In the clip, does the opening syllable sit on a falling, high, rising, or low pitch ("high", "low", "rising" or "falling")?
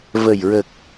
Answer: low